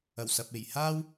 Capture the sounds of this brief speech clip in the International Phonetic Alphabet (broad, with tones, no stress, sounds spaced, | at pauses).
ɐ˨˩ w s ɐ˨ p̚ e˨˩ j h aː˥ w